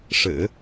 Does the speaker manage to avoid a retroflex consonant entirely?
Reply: no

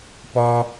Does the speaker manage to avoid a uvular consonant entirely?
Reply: yes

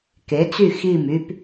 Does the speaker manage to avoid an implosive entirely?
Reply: yes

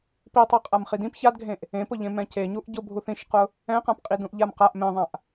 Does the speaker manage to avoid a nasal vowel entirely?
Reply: no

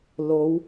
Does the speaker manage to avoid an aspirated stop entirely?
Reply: yes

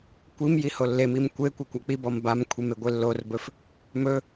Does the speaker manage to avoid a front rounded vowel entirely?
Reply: yes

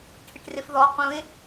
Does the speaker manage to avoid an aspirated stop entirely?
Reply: no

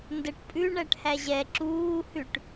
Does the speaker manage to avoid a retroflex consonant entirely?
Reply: no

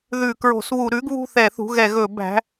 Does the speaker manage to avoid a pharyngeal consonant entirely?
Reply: yes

